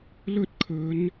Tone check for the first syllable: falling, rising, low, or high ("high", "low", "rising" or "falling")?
high